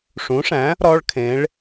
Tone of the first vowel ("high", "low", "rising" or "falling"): rising